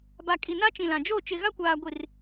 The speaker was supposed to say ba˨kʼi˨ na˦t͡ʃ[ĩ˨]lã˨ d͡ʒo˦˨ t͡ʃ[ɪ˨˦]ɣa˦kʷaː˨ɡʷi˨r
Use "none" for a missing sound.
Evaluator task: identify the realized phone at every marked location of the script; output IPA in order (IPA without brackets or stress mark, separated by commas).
ĩ˨, ɪ˨